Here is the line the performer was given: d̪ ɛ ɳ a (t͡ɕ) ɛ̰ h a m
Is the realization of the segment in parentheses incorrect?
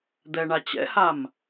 no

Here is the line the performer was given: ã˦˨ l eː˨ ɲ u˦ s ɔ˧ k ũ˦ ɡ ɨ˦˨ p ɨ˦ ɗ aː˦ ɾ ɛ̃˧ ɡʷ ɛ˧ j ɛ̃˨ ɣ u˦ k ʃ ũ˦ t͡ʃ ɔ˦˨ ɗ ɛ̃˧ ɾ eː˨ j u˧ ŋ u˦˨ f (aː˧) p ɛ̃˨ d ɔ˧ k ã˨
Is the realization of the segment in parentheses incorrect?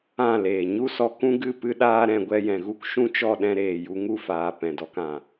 yes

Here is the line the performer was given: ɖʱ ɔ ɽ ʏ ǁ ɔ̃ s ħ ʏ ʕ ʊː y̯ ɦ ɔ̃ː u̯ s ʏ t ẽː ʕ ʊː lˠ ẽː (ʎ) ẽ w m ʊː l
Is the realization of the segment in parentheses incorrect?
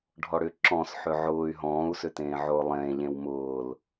no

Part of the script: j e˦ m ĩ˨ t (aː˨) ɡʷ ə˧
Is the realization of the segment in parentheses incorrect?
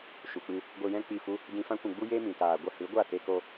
no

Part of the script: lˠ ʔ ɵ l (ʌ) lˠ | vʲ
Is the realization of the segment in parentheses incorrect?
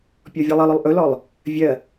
yes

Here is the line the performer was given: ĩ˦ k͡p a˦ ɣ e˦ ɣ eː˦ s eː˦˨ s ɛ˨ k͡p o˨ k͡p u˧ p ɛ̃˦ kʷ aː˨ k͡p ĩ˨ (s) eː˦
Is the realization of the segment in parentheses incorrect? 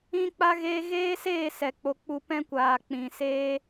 no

